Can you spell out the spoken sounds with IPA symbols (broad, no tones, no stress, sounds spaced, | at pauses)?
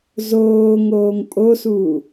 z oː ŋ oː ŋ pʼ o s uː